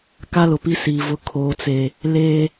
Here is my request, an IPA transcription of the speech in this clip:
k a˦ l ʊ˨ p i˦ s iː˨ v ʊ˦ kʰ oː˦ t͡s e˦ | l e˦

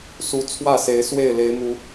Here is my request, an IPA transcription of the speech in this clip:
s u˨˦ t͡sʰ w ä˥˨ s e˨˦ ɪ̯ s w e˥˨ ɪ̯ l e˨˦ ɪ̯ m u˨˦

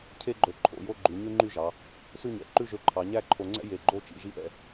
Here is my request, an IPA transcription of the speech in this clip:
cʰ e˥ ɡ͡ǃ ɵ˧˩ ǃʰ o̰˩˧ j o˥ ɡ͡ǃ ʉ˩˧ ɲ ʉ˥ ŋ͡ǃ y˥˧ ʒ ɑ˩˧ | s ʉ˥˧ ɲ ɛ̰˩˧ ǃ ʉ˥˧ ʒ ø˧ ǃʰ ɑ˩˧ ɲ æ˥˧ ǃʰ o˧ ŋ͡ǀ ɛ̰˥ j e˧˩ ɡ͡ǃ o˥˧ t͡ʃ ḭ˩˧ ʒ i˥ ʔ ɛ̰˧

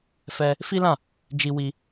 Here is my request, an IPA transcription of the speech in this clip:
f ɛ˧ | f i˦ l ã˦˨ | d͡ʒ i˧ w i˧

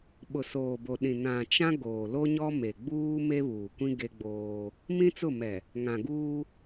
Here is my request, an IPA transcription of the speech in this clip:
ɓ ʊ˨ s oː˨ b o˨ ɗ ĩ˨ n ã˨ t͡ʃ ã˦ ɡ oː˨ l o˦ ɲ ɔ˦ m e˨ ɡ͡b uː˦ m e˦ β uː˨ kʷ ĩ˦ ɡ e˦ ɡ͡b oː˦ | m ĩ˦ t͡s ʊ˦˨ m ɛ˨ | ŋ ã˨ ɡ uː˦

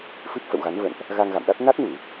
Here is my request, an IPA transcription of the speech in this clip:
f ɨ˦˥ p̚ f ə̰˧˨ w ɣ a˨˦ n v ə̰˧˨ n ʔ | ɣ a˧ ŋ ɣ a̰˧˨ m ɗ a˦˥ t̚ n a˦˥ t̚ n u˧˩˨

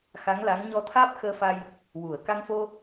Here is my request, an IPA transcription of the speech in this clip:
x a˧˥ ŋ l a˧˥ ŋ ɲ ɔ˧ t̪ʰ aː˦˥ p̚ x əː˧ f a˧ j | w u˨˩˨ ə̯ k a˧ ŋ f o˧

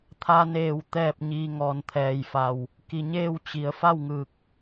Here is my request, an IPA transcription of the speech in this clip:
t̪ʰ a˧ n eː˧˩ w t̪ ɛː˥˨ p̚ ɲ iː˧ ŋ ɔː˩ n t̪ʰ ɛː˩ j f a˩ w | k i˩ ɲ eː˥˨ w t͡ɕ i˩ ə̯ f a˥˨ w ŋ ɯː˧˩ k̚

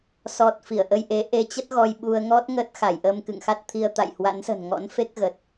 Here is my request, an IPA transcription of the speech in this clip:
s ɔ˨˩ t̚ f i˧˩ ə̯ ʔ ə˧ j ʔ e˨˦ ʔ e˧ t͡ɕ ə˦˥ t̚ ɣ ɔ˧ j ɓ u˧ ə̯ ŋ ɔ˦˥ t̚ ŋ ə˦˥ t̚ x a˧˩ j ʔ əː˧ m k ɨ̰˧˨ ŋ x a˦˥ t̚ t̪ʰ i˧ ə̯ t̪ a̰˧˨ j h w a̰˧˥ n s ə̤˨˩ n ŋ ɔ̰˧˥ n f e˦˥ k̚ ɣ ə˨˩ t̚

